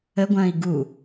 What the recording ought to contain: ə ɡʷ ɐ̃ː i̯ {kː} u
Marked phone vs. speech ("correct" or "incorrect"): incorrect